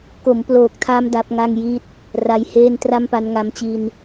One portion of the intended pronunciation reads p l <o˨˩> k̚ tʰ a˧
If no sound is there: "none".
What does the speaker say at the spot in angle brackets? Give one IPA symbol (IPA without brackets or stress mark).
oː˨˩